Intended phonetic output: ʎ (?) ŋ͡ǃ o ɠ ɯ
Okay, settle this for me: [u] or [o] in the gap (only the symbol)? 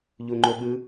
u